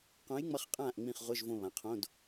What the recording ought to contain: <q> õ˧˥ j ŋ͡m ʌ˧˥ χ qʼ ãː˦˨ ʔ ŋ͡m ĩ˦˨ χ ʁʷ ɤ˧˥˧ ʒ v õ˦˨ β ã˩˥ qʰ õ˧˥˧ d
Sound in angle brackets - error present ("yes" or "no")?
no